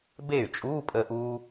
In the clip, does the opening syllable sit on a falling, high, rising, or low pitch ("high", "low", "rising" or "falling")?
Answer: falling